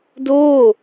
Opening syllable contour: falling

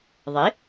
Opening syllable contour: rising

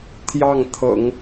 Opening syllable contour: falling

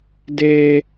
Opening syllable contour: high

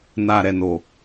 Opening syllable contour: low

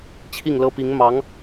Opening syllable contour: falling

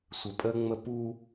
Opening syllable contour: low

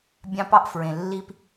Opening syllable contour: high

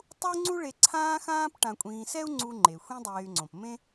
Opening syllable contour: high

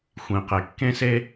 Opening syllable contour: low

